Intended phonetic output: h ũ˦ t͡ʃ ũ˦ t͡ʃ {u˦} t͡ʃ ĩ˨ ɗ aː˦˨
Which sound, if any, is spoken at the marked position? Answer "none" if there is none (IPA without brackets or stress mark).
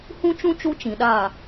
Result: u˦